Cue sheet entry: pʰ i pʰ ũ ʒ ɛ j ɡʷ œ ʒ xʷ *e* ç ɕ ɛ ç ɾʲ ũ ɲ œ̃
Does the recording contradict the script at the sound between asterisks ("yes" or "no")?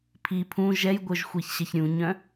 no